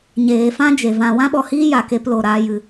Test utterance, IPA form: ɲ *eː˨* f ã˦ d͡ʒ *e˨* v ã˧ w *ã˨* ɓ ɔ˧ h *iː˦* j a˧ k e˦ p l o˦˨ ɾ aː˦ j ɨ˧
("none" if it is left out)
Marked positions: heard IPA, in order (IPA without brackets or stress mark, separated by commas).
eː˨, e˨, ã˦, iː˦